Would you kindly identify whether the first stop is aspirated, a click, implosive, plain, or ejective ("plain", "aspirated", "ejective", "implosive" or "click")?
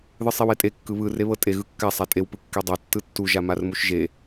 ejective